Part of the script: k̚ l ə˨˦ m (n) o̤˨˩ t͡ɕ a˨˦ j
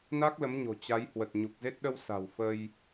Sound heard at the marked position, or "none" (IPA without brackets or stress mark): ɲ